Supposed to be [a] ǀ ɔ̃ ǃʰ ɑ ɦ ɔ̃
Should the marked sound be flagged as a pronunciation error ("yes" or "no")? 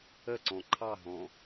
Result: yes